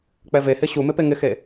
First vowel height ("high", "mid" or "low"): mid